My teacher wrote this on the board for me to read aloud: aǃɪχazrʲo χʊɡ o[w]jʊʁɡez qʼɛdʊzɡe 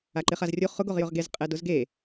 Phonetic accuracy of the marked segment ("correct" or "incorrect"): incorrect